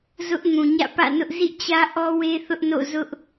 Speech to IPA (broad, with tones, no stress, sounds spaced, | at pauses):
z ʊ˦ ʔ ŋ ũ˨ ɲ ä̰˦˨ p ä̰˦˨ n ʊ˦ ʔ z ḭ˦˨ t͡ɕ ä˦ ʔ ɔ˦ w e˦ θ ʊ˦ ʔ n o̰˦˨ z ʊ˦ ʔ